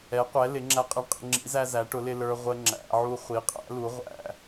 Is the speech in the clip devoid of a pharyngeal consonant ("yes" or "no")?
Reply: no